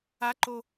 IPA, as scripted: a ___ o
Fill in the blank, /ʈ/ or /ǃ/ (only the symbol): ǃ